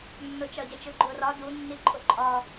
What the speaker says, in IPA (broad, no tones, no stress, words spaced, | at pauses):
nːʊt͡ʃɒɟʌt͡ʃʊ ɡ͡ǃʊːrɒ du nːiǃʼʊǃʼɒ